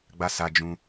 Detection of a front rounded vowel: absent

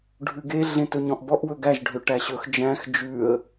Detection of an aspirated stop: absent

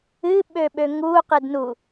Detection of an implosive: present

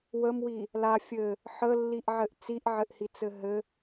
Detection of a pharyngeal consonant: present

